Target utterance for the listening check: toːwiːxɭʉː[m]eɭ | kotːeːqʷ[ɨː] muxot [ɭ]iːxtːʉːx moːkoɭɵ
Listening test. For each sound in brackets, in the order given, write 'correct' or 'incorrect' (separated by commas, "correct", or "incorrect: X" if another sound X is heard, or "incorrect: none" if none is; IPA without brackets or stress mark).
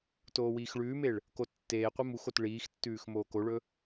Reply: correct, incorrect: ɨ, correct